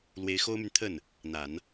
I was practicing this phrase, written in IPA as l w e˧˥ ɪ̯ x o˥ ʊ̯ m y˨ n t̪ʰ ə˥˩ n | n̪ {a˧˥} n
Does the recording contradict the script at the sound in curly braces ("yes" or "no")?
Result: yes